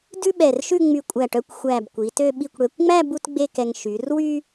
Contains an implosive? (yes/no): yes